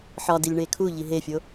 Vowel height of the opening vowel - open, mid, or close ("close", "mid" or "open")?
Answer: open